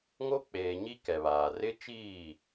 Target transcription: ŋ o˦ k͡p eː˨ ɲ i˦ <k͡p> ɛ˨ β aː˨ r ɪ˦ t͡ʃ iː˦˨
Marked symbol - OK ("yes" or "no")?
no